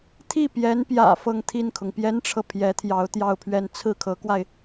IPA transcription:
t̪ʰ i˥˩ p j ɛ˧˥ n p j ä̰˨˩ f ɤ˥˧ ŋ t̪ʰ i˥˩ n kʰ ʊ˩ ŋ p j ɛ˥ n ʈ͡ʂʰ ɤ˨ pʰ j ɛ˧˥ t̪ʰ j ɑ˧˥ ʊ̯ t̪ j ɑ˥˧ ʊ̯ pʰ ɥ ɛ˥˧ n t͡sʰ ɹ̩˥˩ kʰ ɤ˧˥ k w a˧ ɪ̯

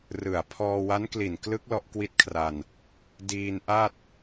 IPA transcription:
r ɯ˨˩ a̯ pʰ ɔː˧ w a˦˥ n k l i˨˩ n k l ɯ˦˥ k̚ l ɔ˦˥ ʔ k w i˦˥ t̚ kʰ r a˧ n | d iː˧ n ʔ a˥˩ t̚

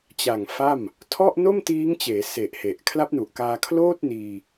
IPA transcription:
t͡ɕ a˨˩ ŋ f a˥˩ m | tʰ ɔ˥˩ ʔ n o˥˩ m t iː˦˥ ŋ t͡ɕ eː˩˦ s e˨˩ ʔ h e˨˩ ʔ kʰ l a˦˥ p̚ n u˨˩ ʔ k aː˧ kʰ l oː˥˩ t̚ n iː˧

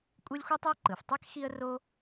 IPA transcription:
kʷʼ ɯ˥ lʲ xʷ i˥ tˤ æ˥ ǃ ɯ˩ f tˤ ɛ˥ k x i˥ ə̯ r o˥

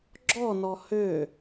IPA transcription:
ɡ͡ǁ ɔ n ɔ h ø

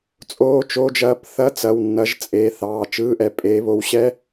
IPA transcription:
t͡sʼ oː˧˥˧ t͡ʃ o˧˥˧ d͡ʒ ɐː˧˥˧ p θ ɐ˧˥˧ t͡s ɐ˩˧˩ w nː ɐ˨˦ ʒ t͡sʼ eː˩˧˩ θ ɑː˩˧˩ t͡ʃ ɯː˧˥˧ ʔ ɛ˨˦ pʼ eː˨˦ β o˨˦ w ɕ ɛ˧˥˧

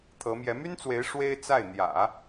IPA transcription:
t̪ʰ ɤ˧˥ m j ɛ˧˥ m y˥ n t͡s w e˧˥ ɪ̯ ʂ w e˥ ɪ̯ t͡s a˥˩ ɪ̯ n̪ j ä̰˨˩˦

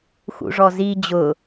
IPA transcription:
x ṵ ʐ ɔ z i d͡ʑ ʊ

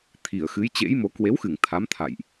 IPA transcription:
t̪ʰ i˧˩ ə̯ x ɨ˨˦ j t͡ɕ ḛ˧˥ j m o˨˦ k w e˨˦ w x ɨ˧˩ ŋ t̪ʰ a˨˦ m t̪ʰ a̰˧˨ j ʔ

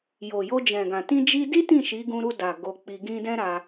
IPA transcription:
j o˨ j o˧ d͡ʒ ɛ̃˨ ɡ ã˨ t ĩ˧ d͡ʒ i˧ d i˦ t ĩ˦˨ ʃ i˨˦ ɡ ũ˧ ɾ u˧ d a˨ ɡ o˧ k͡p i˧ ɡ ĩ˦ d ɛ̃˦ ɾ a˧

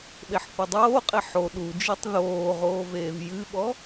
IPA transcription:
ɓ e ħ θ o dˤ oː qʼ e ħ o ɗ u d͡ʒ i tˤ ð oː ʁ oː v eː v j ɨ ɓ ɔ

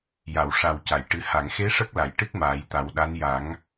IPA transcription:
j a˨˩˨ w ʂ a˨˩ w c a˨˩˨ j ʈ ɨ˨˩ h a˨˩˨ ŋ x e˧˥ ʂ ə˦˥ k̚ l a˨˩˨ j ʈ ɨ˦˥ k̚ m aː˨˩˦ j t̪ a˨˩˦ w ɗ a˧˥ n j a˨˩˦ ŋ

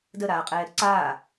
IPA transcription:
d ə ɾ aː qʼ ɛː ɾ ə ǀ aː

